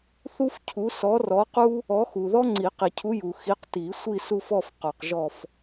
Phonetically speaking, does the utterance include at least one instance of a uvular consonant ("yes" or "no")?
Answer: yes